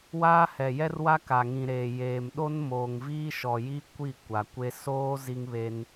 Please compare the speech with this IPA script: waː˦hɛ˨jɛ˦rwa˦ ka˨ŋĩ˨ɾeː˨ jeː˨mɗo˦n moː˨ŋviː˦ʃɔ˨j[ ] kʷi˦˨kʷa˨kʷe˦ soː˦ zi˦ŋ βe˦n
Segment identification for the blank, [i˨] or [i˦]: i˦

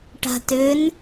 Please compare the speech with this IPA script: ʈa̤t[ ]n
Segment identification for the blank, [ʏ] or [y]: ʏ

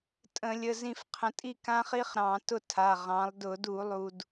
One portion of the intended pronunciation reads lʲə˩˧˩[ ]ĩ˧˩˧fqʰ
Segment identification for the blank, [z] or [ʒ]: z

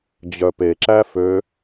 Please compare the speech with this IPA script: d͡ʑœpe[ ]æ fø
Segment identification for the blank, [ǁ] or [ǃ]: ǁ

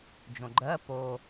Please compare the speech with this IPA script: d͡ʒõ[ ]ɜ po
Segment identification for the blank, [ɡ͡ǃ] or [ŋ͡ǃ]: ɡ͡ǃ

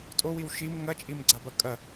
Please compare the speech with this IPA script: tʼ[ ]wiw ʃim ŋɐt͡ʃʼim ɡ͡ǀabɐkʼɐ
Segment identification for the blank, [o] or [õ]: o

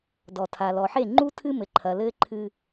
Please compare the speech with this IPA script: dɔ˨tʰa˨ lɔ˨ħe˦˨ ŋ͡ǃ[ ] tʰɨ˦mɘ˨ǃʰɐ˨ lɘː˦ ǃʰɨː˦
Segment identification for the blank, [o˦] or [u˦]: u˦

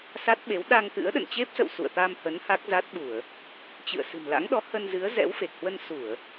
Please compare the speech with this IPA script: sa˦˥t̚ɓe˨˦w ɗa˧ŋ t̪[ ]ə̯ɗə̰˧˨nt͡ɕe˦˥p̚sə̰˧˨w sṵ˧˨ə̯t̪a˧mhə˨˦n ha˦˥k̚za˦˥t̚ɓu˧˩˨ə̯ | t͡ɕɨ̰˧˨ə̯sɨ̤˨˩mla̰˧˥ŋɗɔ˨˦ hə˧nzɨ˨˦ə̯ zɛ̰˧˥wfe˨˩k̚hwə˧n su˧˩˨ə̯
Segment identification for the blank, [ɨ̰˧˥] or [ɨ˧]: ɨ̰˧˥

